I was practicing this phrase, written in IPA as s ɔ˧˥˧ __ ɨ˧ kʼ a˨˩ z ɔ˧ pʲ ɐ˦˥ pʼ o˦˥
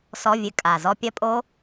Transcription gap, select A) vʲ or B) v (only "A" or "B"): A